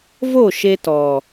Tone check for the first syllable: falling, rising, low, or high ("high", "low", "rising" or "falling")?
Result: falling